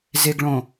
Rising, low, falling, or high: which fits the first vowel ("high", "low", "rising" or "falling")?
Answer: low